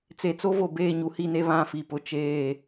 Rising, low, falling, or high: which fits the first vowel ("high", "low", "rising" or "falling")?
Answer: low